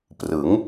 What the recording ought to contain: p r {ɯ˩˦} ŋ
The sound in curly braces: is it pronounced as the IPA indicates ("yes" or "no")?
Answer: yes